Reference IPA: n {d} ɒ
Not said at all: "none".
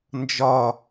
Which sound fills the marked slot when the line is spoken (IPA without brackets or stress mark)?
d͡ʒ